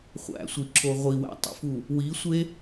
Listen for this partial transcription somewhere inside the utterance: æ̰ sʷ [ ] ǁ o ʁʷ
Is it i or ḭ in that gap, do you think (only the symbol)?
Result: i